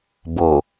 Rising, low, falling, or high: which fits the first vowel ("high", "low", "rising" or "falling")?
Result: low